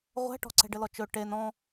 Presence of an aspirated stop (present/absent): absent